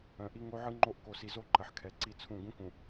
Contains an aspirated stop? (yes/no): yes